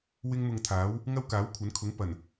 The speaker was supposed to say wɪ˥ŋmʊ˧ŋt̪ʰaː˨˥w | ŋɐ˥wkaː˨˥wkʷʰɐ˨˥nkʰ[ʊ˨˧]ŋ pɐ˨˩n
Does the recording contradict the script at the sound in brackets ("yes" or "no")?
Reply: yes